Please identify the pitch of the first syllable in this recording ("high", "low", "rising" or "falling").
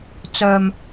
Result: low